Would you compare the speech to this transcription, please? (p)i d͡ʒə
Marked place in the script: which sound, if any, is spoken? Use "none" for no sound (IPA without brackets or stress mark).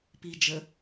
p